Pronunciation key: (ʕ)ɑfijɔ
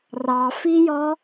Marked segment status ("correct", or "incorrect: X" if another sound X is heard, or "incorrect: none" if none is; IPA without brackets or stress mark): incorrect: r